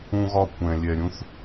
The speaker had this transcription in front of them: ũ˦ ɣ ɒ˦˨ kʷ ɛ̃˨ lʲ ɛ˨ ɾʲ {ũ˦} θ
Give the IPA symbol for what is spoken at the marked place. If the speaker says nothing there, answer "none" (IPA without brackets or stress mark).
ũ˦